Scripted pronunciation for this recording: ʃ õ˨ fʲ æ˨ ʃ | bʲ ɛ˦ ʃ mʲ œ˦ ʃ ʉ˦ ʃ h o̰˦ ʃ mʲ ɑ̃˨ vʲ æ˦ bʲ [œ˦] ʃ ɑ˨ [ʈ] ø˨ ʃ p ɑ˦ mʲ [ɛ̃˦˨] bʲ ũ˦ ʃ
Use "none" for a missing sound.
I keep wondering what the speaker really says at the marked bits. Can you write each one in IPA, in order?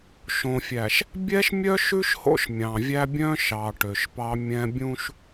œ̃˦, ʈ, ɛ̃˦

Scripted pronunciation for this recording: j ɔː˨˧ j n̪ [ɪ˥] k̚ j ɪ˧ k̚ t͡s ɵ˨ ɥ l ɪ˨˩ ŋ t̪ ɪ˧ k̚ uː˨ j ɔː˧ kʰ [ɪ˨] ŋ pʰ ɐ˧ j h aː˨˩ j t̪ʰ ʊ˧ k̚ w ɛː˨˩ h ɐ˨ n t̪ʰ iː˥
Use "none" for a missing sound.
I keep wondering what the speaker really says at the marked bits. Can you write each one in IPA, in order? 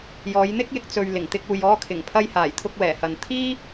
ɪ˥, ɪ˨˩

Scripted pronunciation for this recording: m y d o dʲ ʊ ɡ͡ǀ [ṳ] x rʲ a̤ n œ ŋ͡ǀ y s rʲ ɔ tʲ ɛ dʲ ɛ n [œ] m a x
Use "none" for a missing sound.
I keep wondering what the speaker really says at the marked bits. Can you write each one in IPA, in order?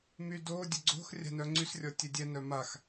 o̤, œ

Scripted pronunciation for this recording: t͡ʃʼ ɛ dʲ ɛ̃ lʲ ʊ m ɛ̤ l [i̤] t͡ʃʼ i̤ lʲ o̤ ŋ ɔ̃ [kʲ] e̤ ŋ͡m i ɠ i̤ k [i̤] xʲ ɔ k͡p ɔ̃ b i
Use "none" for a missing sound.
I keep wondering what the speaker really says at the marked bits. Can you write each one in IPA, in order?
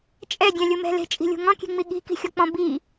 e̤, kʲ, i̤

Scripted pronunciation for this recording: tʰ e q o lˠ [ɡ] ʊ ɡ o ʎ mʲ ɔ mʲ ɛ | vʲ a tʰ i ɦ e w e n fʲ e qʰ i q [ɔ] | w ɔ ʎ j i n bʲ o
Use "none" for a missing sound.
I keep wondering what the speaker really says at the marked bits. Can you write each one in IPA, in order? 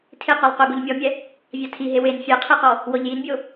q, ɔ

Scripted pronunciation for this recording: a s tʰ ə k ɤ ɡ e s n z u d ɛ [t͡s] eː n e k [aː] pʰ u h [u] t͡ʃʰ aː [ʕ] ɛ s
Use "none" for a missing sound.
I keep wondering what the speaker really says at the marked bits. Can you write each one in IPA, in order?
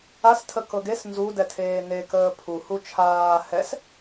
tʰ, əː, u, h

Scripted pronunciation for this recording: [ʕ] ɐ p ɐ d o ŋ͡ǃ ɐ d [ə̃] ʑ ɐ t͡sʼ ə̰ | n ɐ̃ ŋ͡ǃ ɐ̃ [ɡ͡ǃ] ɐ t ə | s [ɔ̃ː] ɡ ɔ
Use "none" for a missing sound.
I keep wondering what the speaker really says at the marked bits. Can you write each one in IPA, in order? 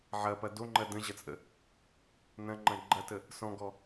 ʕ, ə̃, ɡ͡ǃ, ɔ̃

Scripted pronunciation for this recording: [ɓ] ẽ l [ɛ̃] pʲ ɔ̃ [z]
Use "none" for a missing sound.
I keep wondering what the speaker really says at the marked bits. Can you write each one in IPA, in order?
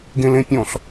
ɡ, ẽ, ɬ

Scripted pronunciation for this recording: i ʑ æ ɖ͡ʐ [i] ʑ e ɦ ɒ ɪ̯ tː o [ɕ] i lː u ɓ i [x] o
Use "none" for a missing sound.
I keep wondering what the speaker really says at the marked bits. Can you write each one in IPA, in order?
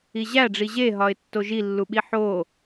i, ʒ, ħ

